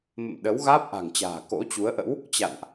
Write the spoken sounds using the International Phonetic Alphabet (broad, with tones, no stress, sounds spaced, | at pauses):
m ə̰˧˨ m ɗ ə˨˦ w ɣ aː˦˥ p̚ ʔ a̤˨˩ ŋ t͡ɕ a̤ː˨˩ k o̰˧˥ t͡ɕ u˨˦ ə̯ ʔ ə̰˧˥ w | t͡ɕ a̰˧˨ n ʔ